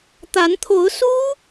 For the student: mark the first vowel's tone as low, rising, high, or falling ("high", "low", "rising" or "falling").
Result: rising